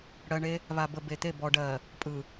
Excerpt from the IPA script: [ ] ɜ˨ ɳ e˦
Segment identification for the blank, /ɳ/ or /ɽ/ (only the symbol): ɽ